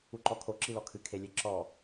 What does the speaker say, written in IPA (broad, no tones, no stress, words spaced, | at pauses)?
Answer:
uǃɔkʰo ǁilɔkʰɨ kʰelʲeǁɔ